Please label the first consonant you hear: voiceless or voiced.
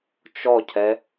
voiceless